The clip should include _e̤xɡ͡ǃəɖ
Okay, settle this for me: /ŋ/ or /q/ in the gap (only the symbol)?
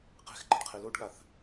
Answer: q